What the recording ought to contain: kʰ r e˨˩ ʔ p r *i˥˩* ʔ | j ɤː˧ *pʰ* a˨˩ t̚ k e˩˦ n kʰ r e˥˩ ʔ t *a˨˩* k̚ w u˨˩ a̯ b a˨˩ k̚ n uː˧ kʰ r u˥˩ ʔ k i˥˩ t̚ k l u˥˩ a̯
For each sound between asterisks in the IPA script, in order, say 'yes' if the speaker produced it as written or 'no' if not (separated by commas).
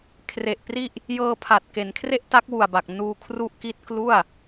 yes, yes, no